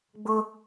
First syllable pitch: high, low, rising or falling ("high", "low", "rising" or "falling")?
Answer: high